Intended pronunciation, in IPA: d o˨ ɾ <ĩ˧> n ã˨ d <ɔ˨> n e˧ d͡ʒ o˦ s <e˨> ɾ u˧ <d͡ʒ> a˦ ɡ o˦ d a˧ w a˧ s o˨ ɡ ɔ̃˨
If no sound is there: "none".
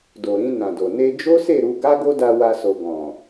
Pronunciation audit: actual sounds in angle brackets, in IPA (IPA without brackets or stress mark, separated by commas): ĩ˧, o˨, e˦˨, ɡ